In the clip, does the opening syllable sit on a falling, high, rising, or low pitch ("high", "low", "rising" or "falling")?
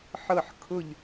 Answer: falling